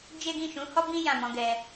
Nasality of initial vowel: oral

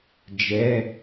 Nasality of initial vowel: oral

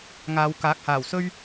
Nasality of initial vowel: oral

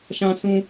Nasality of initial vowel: nasal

